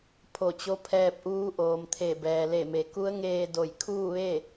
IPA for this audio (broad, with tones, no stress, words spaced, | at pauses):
pʰo˧˩t͡ɕo˧˥ pʰɛː˧p̚ʔuː˧˥ ʔoː˩mt̪ʰe˧˩bɛː˩le˧˩ me˩ku˧˥ə̯ŋeː˧ do˧˩jkʰuː˥˨ʋe˥˨